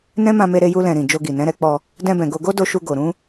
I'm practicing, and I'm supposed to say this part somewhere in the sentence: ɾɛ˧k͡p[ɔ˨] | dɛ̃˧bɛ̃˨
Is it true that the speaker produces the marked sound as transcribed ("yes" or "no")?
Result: no